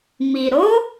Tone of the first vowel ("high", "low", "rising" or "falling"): low